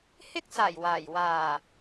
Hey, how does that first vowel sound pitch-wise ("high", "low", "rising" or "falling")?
high